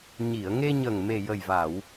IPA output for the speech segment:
ɲi˨˩˨ə̯ŋe˧ɲə˨˩ŋ me˨˩jə˨˩jva˨˩˨w

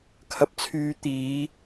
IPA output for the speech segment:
kʰɐ˧p̚t͡sʰyː˧ t̪iː˨˧

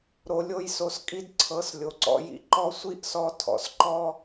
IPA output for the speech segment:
ɾo˧lʲo˦jso˧skʼi˦d ǀʰɤ˨˦slʲo˨ǀɔ̰˧jḭ˧ ǃɔ˦ sʷi˦ʔsɔ˧ tʰɔ̰˨sǃɔ˦

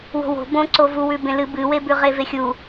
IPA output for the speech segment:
wo̤wo̤ bõǀo vuwʉ bẽlɨ bɨwebʉ ʁevexʲu

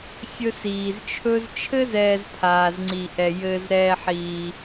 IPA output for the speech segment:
sʲɵ˥siː˧zt͡ʃʰɵ˥z t͡ʃʰɘ˥zɛː˧z pʰaː˧zŋ͡ǀi˧ʔɛ˧ jɘː˧zɾɛː˧ ħiː˧

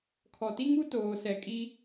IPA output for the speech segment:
kʰɔ˨ti˦ŋu˦ toː˨sɛ˨kʼi˦

